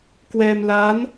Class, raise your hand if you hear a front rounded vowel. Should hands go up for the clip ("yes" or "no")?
no